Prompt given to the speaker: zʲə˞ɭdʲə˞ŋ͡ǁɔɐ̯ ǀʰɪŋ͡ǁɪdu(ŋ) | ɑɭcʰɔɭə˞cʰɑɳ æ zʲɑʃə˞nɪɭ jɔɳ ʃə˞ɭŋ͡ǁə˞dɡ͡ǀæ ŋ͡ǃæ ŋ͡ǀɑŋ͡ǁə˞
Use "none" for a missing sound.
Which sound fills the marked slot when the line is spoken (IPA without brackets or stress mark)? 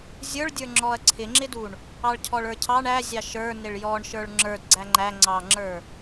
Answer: ɳ